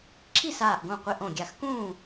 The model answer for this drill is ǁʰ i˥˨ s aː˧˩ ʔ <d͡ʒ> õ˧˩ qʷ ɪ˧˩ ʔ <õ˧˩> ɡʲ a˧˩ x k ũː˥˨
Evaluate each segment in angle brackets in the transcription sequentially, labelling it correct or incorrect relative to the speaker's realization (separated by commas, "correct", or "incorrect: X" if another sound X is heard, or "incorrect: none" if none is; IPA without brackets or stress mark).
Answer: incorrect: ɡ, correct